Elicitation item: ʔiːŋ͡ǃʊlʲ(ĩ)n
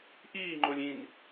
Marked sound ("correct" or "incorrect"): correct